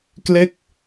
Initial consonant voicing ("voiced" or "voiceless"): voiceless